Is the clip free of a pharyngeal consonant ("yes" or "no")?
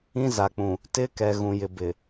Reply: yes